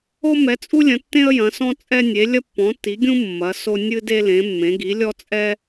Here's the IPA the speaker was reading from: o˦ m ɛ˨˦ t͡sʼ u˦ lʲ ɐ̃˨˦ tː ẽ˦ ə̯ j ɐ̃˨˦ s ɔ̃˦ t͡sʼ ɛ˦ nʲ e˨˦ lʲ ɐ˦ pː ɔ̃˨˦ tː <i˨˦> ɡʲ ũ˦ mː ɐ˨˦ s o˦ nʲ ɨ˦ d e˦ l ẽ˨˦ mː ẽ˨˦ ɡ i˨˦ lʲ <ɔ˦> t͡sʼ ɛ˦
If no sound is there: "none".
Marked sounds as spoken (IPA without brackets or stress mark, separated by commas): i˨˦, ɔ˦